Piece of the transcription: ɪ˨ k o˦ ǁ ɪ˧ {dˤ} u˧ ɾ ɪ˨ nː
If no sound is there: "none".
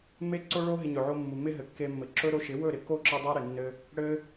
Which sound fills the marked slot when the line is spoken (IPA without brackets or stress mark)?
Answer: dˤ